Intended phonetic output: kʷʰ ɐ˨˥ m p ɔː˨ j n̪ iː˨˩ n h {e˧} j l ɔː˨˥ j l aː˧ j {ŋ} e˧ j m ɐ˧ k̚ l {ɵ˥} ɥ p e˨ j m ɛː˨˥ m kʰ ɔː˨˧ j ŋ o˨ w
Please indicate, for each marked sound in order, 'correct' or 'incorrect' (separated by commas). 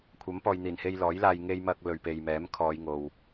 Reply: correct, correct, incorrect